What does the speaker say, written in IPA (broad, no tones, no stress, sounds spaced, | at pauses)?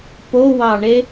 p o w ɑ ɳ e